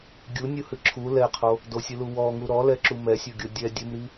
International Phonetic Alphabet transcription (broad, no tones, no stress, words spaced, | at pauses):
ɡʲunʲuhɨ ǁʰu lɛqʰo | dosʲɨlu wɔŋu ɾɔlɛǁu mɛsʲɔɡʲo dʲɛ dʲɘmɾi